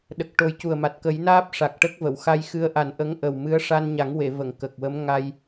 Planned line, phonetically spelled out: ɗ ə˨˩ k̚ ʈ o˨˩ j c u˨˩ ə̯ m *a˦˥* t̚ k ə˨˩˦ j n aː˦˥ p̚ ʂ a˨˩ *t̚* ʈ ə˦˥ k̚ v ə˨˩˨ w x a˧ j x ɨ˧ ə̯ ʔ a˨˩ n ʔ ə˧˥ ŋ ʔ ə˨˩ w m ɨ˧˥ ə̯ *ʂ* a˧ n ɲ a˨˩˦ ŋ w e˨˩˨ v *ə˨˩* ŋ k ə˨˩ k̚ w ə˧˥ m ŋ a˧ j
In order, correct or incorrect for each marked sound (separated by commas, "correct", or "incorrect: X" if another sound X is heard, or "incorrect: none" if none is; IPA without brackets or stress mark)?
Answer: incorrect: a˨˩, incorrect: k̚, correct, incorrect: ə˨˩˨